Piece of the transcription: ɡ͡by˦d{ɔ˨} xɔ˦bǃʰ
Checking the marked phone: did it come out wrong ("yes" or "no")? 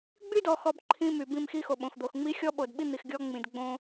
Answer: no